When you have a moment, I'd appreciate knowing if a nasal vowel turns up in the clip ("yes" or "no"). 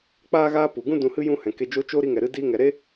yes